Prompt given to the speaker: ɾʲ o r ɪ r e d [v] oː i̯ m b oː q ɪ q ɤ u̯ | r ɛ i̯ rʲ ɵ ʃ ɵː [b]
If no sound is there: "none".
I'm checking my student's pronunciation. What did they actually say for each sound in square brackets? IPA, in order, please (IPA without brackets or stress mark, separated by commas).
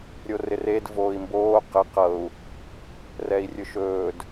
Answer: v, d